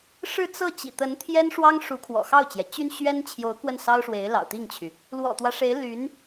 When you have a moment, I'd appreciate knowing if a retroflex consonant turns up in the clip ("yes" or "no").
yes